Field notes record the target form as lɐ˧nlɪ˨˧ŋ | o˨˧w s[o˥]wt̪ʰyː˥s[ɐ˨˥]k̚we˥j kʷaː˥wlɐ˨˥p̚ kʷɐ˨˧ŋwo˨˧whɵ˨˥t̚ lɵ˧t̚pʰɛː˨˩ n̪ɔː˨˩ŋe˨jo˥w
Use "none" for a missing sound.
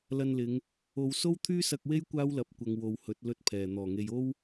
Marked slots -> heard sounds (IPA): o˥, ɐ˧

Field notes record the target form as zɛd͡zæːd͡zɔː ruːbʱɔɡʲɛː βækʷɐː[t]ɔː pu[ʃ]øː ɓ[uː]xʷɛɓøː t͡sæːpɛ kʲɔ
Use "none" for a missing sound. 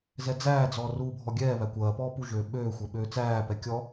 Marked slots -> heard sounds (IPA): p, ʒ, øː

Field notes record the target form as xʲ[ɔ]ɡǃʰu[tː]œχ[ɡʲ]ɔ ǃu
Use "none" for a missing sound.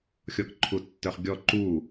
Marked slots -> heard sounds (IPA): ɔ, tː, ɡʲ

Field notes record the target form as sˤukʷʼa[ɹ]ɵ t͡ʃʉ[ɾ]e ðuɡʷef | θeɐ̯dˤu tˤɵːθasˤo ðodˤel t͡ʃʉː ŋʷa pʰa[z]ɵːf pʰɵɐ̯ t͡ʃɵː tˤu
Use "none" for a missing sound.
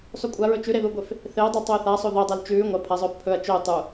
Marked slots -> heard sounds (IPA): ɹ, ɾ, zˤ

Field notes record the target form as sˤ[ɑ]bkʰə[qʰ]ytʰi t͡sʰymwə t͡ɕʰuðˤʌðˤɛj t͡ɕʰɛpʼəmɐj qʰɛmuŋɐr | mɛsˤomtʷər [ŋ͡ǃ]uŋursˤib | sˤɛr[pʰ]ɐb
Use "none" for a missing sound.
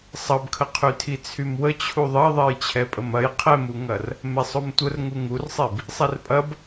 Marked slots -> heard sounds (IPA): ʌ, qʰ, ŋ, pʼ

